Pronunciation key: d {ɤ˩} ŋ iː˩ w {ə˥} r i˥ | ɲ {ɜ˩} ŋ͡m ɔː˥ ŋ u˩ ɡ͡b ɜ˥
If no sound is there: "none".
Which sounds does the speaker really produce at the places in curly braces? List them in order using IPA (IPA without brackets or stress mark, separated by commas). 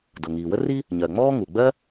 ɤ˩, ə˥, ɜ˩